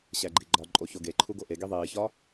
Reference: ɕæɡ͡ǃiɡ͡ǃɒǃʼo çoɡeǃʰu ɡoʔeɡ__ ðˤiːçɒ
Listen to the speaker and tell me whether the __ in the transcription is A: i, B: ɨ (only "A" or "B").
A